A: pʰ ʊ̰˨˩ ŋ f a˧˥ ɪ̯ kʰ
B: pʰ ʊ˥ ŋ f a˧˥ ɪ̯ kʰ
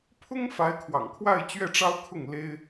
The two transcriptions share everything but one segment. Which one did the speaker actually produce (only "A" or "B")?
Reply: B